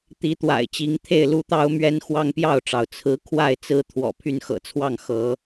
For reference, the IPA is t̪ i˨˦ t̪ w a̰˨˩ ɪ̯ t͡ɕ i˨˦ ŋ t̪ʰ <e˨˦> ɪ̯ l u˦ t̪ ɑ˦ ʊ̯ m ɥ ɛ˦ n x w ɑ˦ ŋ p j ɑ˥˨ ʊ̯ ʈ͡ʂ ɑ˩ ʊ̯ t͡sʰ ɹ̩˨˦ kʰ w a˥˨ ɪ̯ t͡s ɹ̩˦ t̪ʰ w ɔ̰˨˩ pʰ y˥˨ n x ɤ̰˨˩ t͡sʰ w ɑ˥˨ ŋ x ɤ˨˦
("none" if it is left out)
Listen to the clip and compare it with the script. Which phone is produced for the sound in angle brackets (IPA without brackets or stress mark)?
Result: e˥˨